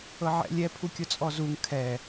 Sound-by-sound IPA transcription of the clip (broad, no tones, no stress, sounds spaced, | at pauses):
ɤ ʕ ɛ̰ lʲ ɛ pʰ u kʲ ʊ t͡sʼ ɔ z u ŋ kʰ ɛ